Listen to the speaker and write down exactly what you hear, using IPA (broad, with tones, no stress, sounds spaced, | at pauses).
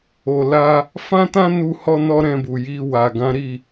o˨ l a˧ | f ã˦ t ã˦ n u˧ h ɔ˧ n ɔ˦ ɾ ɛ̃˧ b u˨ j i˧ w a˨ ɡ ã˨˦ ɾ i˦˨